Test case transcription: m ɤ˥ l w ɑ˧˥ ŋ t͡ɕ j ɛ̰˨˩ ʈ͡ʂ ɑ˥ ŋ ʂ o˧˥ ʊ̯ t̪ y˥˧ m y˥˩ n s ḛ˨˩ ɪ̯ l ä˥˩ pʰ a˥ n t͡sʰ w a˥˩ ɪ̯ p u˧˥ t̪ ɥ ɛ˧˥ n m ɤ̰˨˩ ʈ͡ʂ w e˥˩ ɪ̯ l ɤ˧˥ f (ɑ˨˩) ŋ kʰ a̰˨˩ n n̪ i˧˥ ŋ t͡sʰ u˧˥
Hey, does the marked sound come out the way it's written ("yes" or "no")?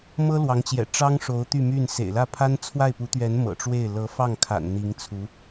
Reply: no